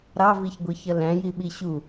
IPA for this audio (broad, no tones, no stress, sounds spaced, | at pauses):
ɾ ɑ v i ç ɡʷ i ç ʌ l æ̃ j i ɓ i ɕ u